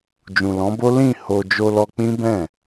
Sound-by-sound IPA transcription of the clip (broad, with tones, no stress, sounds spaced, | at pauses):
d͡ʒ ũ˨ l ɔ̃˨˦ b o˦ l ĩ˦˨ h o˧ d͡ʒ o˧ l ɔ˧ k͡p ĩ˦ b ɛ̃˦˨